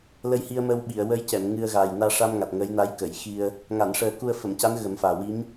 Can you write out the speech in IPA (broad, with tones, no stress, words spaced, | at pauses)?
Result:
lə˧jhi˧ə̯məː˧wɓi˨˩˨ə̯ wə˧˥jcɛ˨˩˨m ŋɨ˧ə̯ɣaː˨˩j naː˧ʂa˧mŋa˨˩t̚ ŋəː˧˥jna˧˥jkə˨˩˨jxi˧ə̯ | ŋa˨˩˨nʂəː˨˩˦ ku˧ə̯ fə˨˩˨mca˧˥n ɣə˨˩˦mfaː˨˩ wi˧˥m